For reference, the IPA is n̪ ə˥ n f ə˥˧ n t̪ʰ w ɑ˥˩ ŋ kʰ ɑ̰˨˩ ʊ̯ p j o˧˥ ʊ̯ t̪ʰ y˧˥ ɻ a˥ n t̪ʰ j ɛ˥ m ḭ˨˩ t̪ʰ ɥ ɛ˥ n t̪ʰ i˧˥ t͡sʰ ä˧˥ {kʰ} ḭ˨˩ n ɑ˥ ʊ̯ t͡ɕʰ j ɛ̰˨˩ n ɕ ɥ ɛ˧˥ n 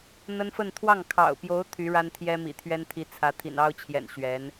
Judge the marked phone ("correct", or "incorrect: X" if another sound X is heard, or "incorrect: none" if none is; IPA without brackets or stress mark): incorrect: t̪ʰ